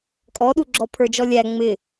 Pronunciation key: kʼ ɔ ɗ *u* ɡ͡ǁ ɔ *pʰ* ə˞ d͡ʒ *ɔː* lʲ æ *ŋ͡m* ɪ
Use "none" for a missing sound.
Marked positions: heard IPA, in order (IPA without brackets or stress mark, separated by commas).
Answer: u, pʰ, ɔ, ŋ͡m